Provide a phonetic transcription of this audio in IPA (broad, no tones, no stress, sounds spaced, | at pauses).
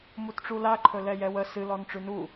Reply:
m u t ʈ͡ʂ u l a ǃʰ ɵ l ɛ j ɛ w ə s ɨ l ɔ n ʈ͡ʂ ʉ n u